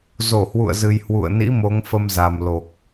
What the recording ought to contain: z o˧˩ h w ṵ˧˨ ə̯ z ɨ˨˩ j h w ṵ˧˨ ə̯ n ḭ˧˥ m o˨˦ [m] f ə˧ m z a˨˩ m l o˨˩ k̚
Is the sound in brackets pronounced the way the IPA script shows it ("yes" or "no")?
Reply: no